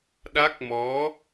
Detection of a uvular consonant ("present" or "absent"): absent